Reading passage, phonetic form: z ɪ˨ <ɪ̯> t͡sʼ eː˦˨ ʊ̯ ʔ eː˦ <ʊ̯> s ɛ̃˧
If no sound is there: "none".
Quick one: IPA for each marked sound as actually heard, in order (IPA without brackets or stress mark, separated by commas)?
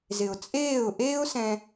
ʊ̯, ʊ̯